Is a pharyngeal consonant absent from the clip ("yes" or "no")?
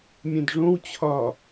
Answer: yes